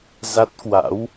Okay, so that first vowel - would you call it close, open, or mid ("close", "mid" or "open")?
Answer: open